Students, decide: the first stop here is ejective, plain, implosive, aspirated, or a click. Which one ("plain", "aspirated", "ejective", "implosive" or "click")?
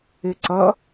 click